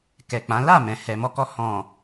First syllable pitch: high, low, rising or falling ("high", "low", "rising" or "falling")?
low